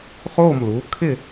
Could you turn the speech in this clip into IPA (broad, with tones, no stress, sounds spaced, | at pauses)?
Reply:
χ o˥˨ m l u˩˥ kʰ ɪ˥˨